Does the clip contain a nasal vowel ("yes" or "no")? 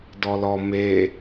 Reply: no